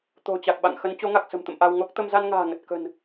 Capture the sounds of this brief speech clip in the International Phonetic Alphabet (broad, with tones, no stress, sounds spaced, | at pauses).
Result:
t̪ o̤˨˩ t͡ɕ a˨˩ k̚ ɓ a̰˧˨ ŋ x ə˨˦ n t͡ɕ o˨˦ ŋ a˨˩ k̚ s ə̤˨˩ m t̪ ə̰˧˨ m ʔ a˧ w ŋ o˦˥ k̚ t̪ ə˧ m z a˧ n ŋ a̤ː˨˩ ŋ ə˨˩ t̚ k ə̤˨˩ n